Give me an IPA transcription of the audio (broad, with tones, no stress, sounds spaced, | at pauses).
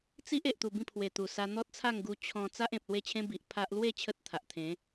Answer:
t͡s i˦ ʔ e˨ ʔ t̪ u˨˩ b ĩ˥˧ pʰ w e˨˩ t̪ u˨˩ s a˧ n̪ ɔ˦ t̚ t͡sʰ a˥˧ ŋ ɡ u˧ t͡ɕʰ ɔ̃˧ t͡s a˦ ʔ ẽ˨ p̚ l w e˥˧ t͡ɕʰ ẽ˦ b i˨ ʔ pʰ a˦ ʔ l w e˥˧ t͡ɕʰ ə˦ t̚ t̪ʰ a˨ ʔ t̪ʰ ẽ˨˦